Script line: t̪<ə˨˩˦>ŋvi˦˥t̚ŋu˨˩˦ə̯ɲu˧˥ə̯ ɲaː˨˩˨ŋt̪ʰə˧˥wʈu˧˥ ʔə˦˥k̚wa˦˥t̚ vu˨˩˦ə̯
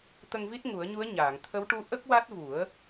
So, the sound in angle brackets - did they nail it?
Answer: no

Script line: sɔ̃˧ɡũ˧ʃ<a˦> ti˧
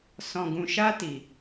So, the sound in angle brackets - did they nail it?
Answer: yes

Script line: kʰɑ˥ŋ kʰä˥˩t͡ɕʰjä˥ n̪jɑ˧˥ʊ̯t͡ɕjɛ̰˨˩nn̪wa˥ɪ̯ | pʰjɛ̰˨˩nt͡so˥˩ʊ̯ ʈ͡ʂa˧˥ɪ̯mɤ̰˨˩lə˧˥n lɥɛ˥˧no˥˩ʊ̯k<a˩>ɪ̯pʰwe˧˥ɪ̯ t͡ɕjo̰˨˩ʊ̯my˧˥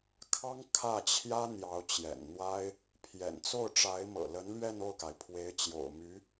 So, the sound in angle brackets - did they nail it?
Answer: yes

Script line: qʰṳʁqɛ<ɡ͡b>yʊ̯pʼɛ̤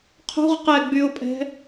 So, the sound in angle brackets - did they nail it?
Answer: yes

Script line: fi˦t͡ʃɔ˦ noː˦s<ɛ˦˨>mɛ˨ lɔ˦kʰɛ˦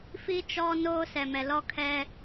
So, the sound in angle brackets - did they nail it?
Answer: no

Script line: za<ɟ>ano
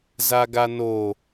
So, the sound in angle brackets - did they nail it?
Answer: no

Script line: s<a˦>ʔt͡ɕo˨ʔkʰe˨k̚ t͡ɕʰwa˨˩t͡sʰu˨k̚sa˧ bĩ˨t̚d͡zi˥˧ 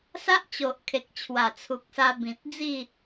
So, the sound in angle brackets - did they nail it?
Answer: yes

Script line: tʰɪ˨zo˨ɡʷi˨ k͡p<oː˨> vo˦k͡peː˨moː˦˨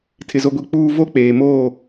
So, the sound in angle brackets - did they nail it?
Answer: no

